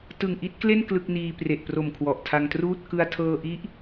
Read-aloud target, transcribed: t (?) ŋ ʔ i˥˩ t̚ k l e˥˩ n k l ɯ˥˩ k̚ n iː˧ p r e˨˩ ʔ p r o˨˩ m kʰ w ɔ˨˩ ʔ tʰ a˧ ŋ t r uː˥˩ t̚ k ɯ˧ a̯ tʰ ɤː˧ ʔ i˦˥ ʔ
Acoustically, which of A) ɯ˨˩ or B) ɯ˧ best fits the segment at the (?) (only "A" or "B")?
A